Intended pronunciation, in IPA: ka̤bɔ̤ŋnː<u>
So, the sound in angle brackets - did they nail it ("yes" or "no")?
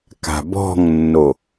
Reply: no